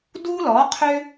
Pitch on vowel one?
high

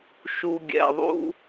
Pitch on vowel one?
low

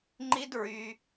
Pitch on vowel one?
high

